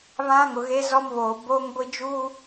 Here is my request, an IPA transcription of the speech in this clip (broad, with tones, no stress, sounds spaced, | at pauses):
β ã˦ ŋ ʊ˨ ɣ e˦ z ɔ˦ m β oː˨ b oː˦ ŋ ɡʷ i˦ d͡ʒ uː˦